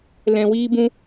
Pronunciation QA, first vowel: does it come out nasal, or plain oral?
nasal